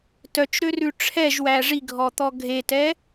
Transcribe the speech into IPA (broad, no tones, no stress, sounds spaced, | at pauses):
t œ t͡ʃ ɾ ø r ʉ ʈ͡ʂʰ ɛ ʒ w æ ʐ i ɡʱ ɔ t̪ ɔ ɡʱ e t ɛ